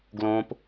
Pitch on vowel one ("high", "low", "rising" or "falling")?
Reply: high